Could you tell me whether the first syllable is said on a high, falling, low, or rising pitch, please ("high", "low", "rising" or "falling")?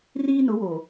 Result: high